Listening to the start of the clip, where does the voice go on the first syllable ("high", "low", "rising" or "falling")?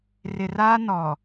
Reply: low